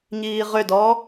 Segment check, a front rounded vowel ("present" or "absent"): present